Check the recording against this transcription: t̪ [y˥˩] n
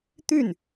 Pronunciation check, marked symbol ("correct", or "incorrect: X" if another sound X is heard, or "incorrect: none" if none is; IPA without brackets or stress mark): correct